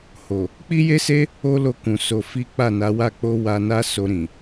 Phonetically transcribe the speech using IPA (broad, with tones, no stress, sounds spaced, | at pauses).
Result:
h o˨ | k͡p i˦ j e˦ s e˦ | o˦ l o˧ k ũ˨ s o˧ f i˦ k͡p a˦˨ n a˨˦ w a˦˨ k͡p o˧ w a˧ n a˦ s o˧ ɾ ĩ˨